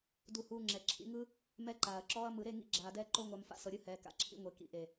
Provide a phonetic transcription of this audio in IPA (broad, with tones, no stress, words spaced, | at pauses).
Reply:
du˧huː˧ŋ͡ǁɛ˨ ǁʰḭ˧ŋɯ˦ | mɛ˦ǃaː˨ɐ̯ǁɔː˦ɐ̯ mɯ˨ɾe˦˨ ŋḭ˧ɡ͡ǁaː˨dɛː˧ ǃo˦ŋʷa˧mfa̰˧ sɤ˨ɾʲɯ˧ hɛː˨ka̰˨ǁʰḭ˧ŋʷe˨ kḭ˨ʔe˨